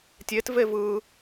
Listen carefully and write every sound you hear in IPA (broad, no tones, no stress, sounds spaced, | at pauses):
tʲ e t v e v ɯ